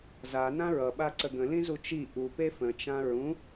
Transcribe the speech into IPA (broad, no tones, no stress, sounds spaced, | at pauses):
z a n ã ɹ ʌ ɓ a ǀ ə ɡ ə̃ l ĩ z u t͡ʃ i ʔ u p e f ə̃ t͡ʃ ã ɹ ũ